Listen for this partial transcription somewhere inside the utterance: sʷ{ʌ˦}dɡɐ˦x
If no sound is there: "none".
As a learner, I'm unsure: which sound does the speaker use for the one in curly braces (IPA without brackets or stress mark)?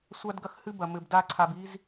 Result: a˦